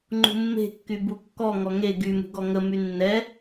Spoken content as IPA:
ŋ͡ǃṳmːe̤kːy bukːɔ ŋɔŋe ɡymṳɡɔ ŋəmy nːɛ

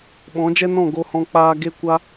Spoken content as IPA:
ɓɔ̃˨˦d͡ʒɛ˦nɔ̃˦˨ ɡo˧hɔ̃˧ k͡paː˧ ɡe˦kʷa˦

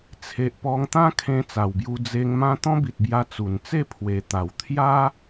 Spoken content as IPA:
t͡sʰe˨ʔpɔ˧ŋt̪ã˦kʰẽ˧ t͡sa˨˩wbju˧ d͡ze˧ŋ mã˦ t̪ɔ̃˦bi˨t̚bja˧ t͡su˨˩nt͡se˥˧ pʰwe˨˩t̪a˨˩w t̪ʰja˦

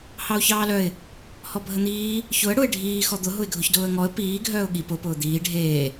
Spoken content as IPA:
hɑʊ̯çɑːlœɪ̯ | hɔbʱən̪iː | çʊə̯ ɽʊɪ̯ ɖʱiː xɔd̪ʊ ɦʊɪ̯ɡʱʊçdʊːə̯ŋɔə̯ piː ɡʱœːʊ̯ɠi pʊ pʊːd̪iː ɖʱeː

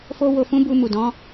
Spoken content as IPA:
fo˦wo˧fũ˦ bu˧mu˨ dɔ̃˨˦

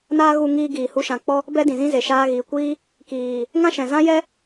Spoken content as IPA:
naː˦ɣu˧ŋiː˧ ɡiː˨ hu˧ʃã˨k͡pɔ˦ | bɛ˦dĩ˨zĩ˦ze˨ ʃaː˧ɣiː˨kʷiː˦ | kiː˨ | ŋã˦ʃɛ̃˨zã˦jɛ˦

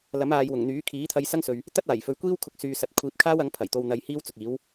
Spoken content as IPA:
lɐ˨˥maː˨jwʊ˨˩ŋn̪yː˨˥ kʰiː˨˥t̪ʰɐ˧jsɐ˥ŋsɵ˨ɥ | t̪ɐ˥t̚aː˨˩jfɵ˨˧ɥkʷiː˥w kʰʊ˧k̚syː˨sɐ˨˥t̚ kʷʰiː˨p̚kʰaː˥wɐ˨˥ŋ pʰɐ˨˩jt̪o˧wn̪ɐ˧j hiː˥wt͡sʊ˨k̚iː˨˥w

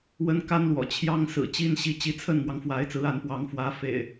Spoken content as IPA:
wə˦nka˦nlwɔ̰˨˩ t͡ɕʰjɑ˦ŋ sɹ̩˨˩t͡ɕi˦n ɕi˨˦t͡ɕi˨˦t͡sʰə˥˨n mwɑ˨˦ŋfwa˨˦ɪ̯t͡sɹ̩˨˦ a˨˦npwɑ˨˦ŋ fwä˨˦fḛ˨˩ɪ̯

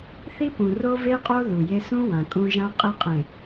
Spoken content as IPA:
θi˦pũ˨ ro˦ve˦qʼo˦ ðu˨je˦ sũ˦ wã˨kʼũ˦ ʒã˦ qʼe˦qʼẽ˨

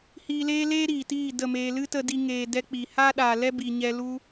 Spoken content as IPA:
hiː˧leː˦leː˦ ɾiː˨tiː˦˨ də˦˨meː˧ lɨ˦tə˧di˧ ŋeː˨ dɛ˦k͡pi˨ haː˦ɗaː˨lɛ˦ bi˨ɲɛ˧ lu˦

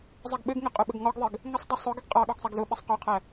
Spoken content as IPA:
zˤɛɡɓɘɡŋə qʼʊɓəɡŋɔɡðˤɘɡ | ŋəsˤdˤʊ sˤʊɡəɡ qʼɑ ɠɔɡsˤæɡzʊɓɛsˤ qɔqʰæ

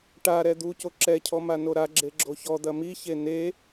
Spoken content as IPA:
ʈaɾɛ d̪uco ǁɛcʰɔ manoɾaɡ͡ǁe ɡ͡ǁoçɔd̪ɐ miçe ne

